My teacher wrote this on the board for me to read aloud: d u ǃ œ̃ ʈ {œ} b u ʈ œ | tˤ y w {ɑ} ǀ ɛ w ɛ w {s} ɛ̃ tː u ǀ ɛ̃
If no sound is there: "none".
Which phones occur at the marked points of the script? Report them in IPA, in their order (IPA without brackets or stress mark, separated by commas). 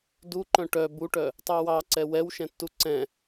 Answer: œ, ɑ, ʃ